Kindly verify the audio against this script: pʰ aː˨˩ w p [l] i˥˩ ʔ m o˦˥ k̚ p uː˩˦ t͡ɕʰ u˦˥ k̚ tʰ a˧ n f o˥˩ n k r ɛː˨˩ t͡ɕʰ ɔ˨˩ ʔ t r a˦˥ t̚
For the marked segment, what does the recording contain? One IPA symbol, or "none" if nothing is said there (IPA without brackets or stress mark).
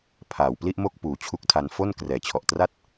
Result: l